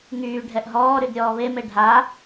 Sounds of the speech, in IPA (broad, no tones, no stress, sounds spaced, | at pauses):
ŋ yː ɖʱ ɛ ʔ ɦ ɔː ɾ y d ɾʲ ɔː β e m e ɖʱ a